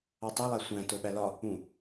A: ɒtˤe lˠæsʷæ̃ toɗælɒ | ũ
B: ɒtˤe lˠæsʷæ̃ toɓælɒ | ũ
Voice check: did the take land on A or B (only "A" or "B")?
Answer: B